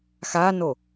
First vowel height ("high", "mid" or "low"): low